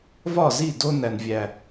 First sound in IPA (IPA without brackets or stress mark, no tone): v